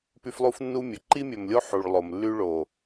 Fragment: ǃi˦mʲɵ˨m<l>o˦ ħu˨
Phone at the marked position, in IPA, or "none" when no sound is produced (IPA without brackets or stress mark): lʲ